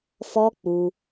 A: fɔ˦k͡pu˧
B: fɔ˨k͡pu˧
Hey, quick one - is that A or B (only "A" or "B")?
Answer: A